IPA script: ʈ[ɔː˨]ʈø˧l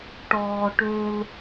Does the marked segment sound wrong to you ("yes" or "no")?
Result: no